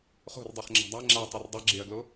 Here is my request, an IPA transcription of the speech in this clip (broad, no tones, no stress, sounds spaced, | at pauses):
χ o̤ r dˤ u χ ŋ͡ǁ a̤ dˤ a ŋ͡ǁ a tˤ e r dˤ ɛ ɡ͡ǁ e ɐ̯ ɡ l o